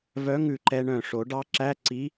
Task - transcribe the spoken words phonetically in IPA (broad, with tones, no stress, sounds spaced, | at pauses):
v œ˧˥ ŋ ʉ˧˩ ǃ ɛ˧ ɳ œ̃˧˩ ʂ o˨˩˦ ɖ ɑ˧˥ ǁ æ˧˥˧ ǀ i˧˥